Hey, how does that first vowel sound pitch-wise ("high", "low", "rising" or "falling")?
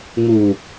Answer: low